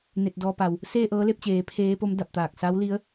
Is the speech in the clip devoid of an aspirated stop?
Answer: no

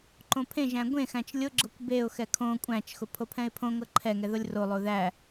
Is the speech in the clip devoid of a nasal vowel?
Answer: no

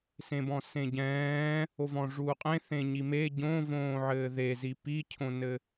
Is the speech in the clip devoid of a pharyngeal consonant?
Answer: no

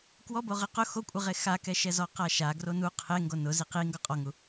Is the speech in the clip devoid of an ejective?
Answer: no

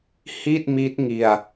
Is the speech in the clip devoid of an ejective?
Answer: yes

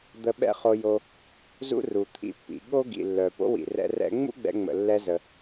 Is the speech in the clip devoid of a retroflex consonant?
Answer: yes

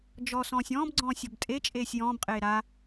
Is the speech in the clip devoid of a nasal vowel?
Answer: no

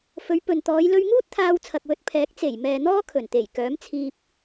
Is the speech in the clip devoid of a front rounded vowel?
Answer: no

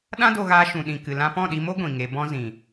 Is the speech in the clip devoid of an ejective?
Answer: yes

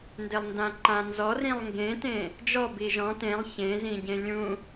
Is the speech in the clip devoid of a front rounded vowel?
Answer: yes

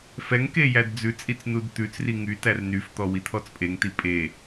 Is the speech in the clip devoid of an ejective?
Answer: no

